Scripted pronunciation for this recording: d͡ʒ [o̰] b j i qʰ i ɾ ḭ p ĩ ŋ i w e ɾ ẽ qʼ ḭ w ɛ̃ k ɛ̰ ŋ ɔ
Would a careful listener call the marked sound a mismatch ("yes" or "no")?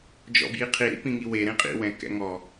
yes